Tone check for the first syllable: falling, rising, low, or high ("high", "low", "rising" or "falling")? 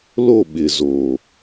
falling